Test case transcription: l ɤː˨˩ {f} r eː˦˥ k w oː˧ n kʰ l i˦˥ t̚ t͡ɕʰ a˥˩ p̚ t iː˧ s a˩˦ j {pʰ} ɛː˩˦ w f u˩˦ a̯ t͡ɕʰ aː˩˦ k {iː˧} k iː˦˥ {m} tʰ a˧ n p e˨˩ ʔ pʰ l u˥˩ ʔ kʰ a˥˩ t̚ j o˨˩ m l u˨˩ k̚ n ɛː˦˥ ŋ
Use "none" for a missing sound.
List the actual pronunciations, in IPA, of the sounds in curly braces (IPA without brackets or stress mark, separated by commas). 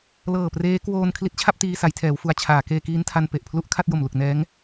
p, tʰ, eː˧, n